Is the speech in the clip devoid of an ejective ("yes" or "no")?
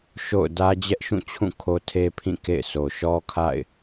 yes